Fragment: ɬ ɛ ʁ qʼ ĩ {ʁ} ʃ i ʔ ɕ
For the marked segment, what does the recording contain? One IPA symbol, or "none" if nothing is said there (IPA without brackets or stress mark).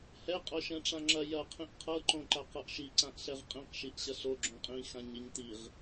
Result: q